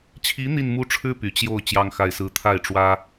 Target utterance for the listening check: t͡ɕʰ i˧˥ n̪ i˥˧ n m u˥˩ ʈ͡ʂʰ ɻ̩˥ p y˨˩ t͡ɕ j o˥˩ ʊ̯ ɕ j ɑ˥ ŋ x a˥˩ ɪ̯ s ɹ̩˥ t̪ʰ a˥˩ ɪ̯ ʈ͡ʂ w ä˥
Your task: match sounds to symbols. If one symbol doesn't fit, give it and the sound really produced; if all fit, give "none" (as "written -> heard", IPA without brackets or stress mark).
ɕ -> t͡ɕ